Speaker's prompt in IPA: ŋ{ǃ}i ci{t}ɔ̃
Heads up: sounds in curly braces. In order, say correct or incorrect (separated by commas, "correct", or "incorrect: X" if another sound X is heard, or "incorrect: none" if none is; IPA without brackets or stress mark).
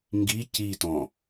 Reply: incorrect: ɡ, correct